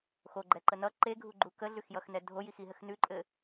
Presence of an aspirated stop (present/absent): absent